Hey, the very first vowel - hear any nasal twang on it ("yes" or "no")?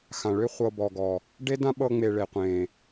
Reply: yes